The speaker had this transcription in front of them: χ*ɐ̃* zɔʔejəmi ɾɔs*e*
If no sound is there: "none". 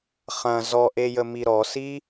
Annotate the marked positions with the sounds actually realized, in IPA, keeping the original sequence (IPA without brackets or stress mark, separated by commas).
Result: ɐ̃, i